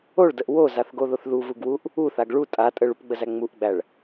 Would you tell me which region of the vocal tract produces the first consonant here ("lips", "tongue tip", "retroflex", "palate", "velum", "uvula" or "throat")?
retroflex